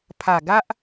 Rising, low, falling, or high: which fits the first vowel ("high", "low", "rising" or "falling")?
low